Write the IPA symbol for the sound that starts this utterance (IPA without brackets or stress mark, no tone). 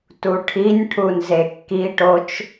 t